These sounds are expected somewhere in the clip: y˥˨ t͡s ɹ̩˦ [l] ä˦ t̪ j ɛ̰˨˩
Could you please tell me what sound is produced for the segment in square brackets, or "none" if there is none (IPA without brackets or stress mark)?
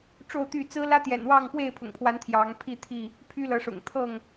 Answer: l